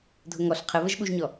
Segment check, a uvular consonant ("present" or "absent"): present